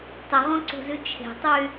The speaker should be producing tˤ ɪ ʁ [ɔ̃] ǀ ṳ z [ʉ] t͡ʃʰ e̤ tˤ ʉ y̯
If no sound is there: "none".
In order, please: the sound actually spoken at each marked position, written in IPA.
ɔ̃, ʉ

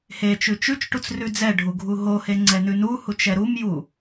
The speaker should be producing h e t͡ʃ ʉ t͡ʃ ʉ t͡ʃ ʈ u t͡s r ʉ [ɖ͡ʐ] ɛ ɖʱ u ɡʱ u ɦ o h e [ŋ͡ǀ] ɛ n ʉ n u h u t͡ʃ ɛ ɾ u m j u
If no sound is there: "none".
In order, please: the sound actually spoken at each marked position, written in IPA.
d͡z, ŋ͡ǀ

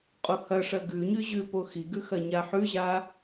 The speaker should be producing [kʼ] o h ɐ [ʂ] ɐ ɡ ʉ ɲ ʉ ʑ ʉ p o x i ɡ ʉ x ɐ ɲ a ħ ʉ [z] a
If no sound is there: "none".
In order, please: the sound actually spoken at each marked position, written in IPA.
qʼ, ʂ, ʑ

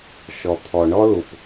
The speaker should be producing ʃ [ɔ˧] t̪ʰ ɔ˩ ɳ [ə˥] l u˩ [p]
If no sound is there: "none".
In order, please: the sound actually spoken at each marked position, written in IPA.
ɔ˩, ɔ˥, p

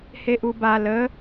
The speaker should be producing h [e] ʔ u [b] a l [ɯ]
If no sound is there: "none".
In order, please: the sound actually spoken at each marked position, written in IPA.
e, b, ə

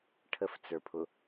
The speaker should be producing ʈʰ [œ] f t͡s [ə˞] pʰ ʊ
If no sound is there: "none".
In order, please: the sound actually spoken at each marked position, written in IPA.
ə, ə˞

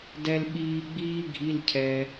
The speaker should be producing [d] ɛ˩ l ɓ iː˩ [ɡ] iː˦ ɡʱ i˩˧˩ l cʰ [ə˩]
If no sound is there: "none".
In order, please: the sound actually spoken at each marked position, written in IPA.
d, ɡ͡b, ɛ˩

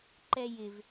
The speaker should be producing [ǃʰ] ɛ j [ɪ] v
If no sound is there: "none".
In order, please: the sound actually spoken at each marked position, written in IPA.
ǃ, ɪ

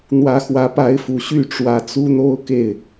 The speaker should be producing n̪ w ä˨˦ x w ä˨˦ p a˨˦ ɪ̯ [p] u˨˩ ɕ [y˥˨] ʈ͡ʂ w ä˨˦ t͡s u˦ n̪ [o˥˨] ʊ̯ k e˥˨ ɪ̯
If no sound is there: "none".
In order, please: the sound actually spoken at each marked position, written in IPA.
f, y˥˨, o˦

